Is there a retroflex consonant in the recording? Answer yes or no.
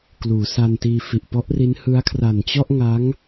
no